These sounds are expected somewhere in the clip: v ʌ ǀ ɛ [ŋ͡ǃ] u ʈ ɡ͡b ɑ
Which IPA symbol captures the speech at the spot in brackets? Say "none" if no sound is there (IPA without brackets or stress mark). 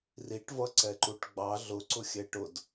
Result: ǃ